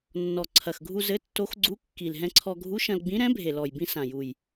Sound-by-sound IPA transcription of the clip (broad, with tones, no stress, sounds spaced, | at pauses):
nː ɔ˨˩ ǀʰ ɐ˨˩ x ɡʱ u˧ z ɘ˧˥ tː o˧˥ x ɡ͡ǀ u˧˥ kː i˨˩ l ɦ ɛ̃˧ ǀʰ ɔ˧ ɡʱ u˧˥ ʃ ɐ̃˧ l ɡ͡b ĩ˧˥ ɾ ɛ̃˧˥ bʱ e˨˩ l ɔ˨˩ j b ĩ˧ s ã˨˩ j u˨˩ j